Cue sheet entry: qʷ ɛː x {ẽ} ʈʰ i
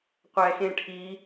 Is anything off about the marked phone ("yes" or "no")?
no